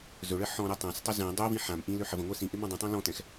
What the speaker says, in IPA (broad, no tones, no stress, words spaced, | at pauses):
zɵɭə ħɔ̃ɾɛ tˤãstˤɵ zɛ̃ dˤøvĩ ħãm ʔĩløħ əvə̃ŋʷɛ sĩʔɪ mɔ̃dˤə̃tˤã lɔ̃tɛ̃x